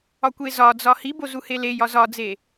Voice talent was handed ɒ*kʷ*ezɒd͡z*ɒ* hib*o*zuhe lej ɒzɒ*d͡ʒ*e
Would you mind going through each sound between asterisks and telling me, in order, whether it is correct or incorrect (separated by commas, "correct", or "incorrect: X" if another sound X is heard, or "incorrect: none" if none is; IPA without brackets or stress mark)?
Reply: correct, correct, correct, incorrect: d͡z